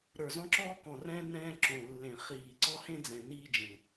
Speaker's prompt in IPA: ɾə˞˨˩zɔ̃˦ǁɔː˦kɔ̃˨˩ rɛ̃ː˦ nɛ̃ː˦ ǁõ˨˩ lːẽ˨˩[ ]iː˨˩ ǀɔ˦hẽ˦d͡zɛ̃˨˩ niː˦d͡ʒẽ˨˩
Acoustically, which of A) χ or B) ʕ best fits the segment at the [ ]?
A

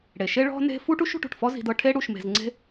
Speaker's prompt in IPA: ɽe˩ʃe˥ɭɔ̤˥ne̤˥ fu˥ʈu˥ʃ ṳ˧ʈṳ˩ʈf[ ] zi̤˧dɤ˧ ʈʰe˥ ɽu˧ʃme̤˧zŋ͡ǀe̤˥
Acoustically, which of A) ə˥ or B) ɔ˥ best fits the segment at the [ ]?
B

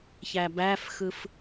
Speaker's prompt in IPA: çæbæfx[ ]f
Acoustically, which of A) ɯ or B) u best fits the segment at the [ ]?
A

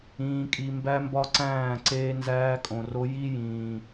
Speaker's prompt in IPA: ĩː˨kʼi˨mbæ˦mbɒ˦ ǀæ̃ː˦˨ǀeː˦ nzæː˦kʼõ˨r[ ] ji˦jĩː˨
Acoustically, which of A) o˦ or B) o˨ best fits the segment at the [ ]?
A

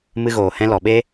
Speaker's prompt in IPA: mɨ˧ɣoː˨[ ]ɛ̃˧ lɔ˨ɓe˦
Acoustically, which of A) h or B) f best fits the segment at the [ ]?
A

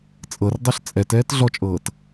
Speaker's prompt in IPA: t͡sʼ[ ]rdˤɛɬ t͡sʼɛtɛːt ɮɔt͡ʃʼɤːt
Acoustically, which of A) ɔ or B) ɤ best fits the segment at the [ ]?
B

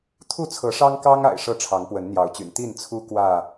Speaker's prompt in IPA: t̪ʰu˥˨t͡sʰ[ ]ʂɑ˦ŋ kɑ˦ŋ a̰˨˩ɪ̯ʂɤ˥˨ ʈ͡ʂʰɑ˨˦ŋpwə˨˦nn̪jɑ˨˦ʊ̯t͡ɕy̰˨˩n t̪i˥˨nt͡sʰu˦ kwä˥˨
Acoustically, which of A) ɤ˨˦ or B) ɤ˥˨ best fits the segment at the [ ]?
A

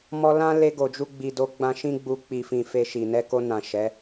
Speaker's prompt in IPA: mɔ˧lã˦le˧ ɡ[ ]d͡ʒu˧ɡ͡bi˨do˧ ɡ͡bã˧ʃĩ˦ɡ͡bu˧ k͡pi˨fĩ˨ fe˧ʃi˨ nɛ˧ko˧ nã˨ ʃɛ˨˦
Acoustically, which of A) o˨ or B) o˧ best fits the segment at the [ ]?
A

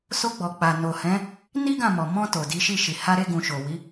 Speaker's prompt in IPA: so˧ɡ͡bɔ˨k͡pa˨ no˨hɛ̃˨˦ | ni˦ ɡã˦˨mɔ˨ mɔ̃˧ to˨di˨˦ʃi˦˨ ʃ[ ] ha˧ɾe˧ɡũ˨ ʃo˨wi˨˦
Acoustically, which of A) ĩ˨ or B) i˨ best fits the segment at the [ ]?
B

